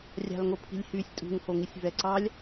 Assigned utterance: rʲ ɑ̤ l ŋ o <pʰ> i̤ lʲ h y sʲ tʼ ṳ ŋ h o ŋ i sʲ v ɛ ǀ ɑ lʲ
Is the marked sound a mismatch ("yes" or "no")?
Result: no